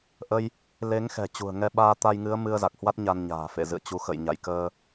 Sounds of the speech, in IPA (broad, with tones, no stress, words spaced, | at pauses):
ʔə˧j | le˨˦ŋ xɛ̤˨˩t͡ɕṳ˨˩ə̯ŋɛ˧ ɓaː˧t̪a˧jŋɨ˨˦ə̯ mɨ˧ə̯za˨˩k̚hwa˦˥t̚ ɲa˧nɲa̤ː˨˩ fḛ˧˨zɨ̰˧˨ə̯t͡ɕu˨˦ xə̰˧˨jɲa̰˧˨jkəː˧